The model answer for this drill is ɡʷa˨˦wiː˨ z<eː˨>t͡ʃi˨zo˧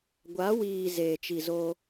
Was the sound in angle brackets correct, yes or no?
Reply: yes